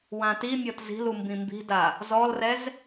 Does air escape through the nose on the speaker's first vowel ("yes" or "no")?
yes